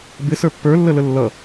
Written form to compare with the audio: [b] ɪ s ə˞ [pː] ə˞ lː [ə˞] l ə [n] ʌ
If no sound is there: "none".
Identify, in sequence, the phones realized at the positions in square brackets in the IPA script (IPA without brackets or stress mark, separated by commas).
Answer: b, pː, ə, lː